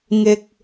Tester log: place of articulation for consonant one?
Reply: velar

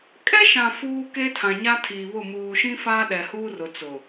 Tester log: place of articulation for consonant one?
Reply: velar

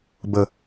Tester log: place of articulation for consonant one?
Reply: labial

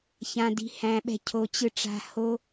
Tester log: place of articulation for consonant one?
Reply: palatal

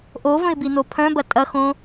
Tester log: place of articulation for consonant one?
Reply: glottal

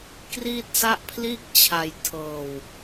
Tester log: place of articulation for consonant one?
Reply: velar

